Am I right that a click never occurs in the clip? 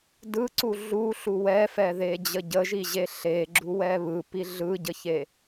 no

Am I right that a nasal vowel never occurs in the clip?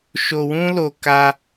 no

